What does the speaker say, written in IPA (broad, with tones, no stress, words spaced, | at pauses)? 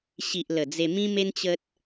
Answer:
ɕi˨ʔ lə˨˩ d͡ze˧mĩ˦me˦n t͡ɕə˦t̚